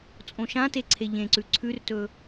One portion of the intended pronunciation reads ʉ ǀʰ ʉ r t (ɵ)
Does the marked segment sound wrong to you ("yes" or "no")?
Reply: no